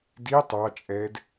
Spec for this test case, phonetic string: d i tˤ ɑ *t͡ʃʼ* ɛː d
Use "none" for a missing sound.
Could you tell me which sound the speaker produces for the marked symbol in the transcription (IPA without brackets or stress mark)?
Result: t͡ʃʼ